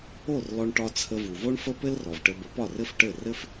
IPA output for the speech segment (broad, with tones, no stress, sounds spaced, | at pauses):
o˥˩ r l ɔ˧ ɳ ʈ ɒ˧ t͡sʰ ə˧ v u˩ v o˥ ɳ f ə˥ p ɘ˥ l r ɔ˩ v ʈ ɘ˧ b ə˩˥ p ɒ˥˩ r ɘ˥ f ʈ ɘ˥˩ r ɘ˥ f